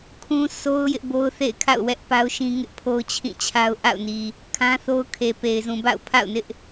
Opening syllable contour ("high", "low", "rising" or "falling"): high